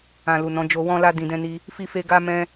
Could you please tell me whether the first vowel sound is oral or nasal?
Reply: nasal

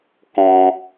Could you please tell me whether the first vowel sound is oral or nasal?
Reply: nasal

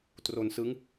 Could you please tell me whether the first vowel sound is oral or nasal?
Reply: oral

